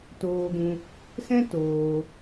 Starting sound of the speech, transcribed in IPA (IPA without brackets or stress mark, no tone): t